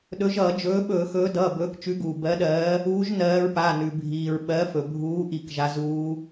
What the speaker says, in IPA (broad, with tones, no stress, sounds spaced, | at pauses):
ɗ ɵ˨˦ ʒ ʌː˧˩˧ d͡ʒ ɵː˨˦ ɓ ɵː˧˩˧ x ɵː˨˦ d ʌː˩˧˩ b ɵː˨˦ k t͡ʃ ʉ˨˦ ɡ uː˩ b ɜ˨˦ ɗ ɜː˨˦ | uː˨˦ ʒ n ɜː˨˦ ɹ p a˩˧˩ n ʉ˩ bʱ iː˩ ɹ ɓ ɜ˨˦ f ɵ˩ bʱ uː˨˦ ʔ i˧˩˧ k ʒ a˨˦ z uː˨˦